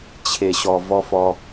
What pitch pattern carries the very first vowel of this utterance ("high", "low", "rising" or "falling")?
low